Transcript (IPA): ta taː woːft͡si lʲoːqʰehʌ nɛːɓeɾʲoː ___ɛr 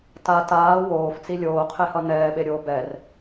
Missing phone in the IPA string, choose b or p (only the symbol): b